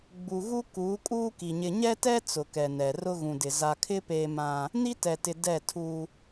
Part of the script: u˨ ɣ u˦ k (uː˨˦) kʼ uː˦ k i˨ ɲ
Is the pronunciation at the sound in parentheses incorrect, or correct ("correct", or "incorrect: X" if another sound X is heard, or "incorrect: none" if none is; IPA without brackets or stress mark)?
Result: correct